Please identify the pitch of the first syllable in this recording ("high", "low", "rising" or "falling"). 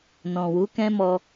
low